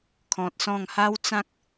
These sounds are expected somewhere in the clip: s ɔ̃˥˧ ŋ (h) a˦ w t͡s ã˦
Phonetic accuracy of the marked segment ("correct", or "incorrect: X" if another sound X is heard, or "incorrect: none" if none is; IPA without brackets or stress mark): correct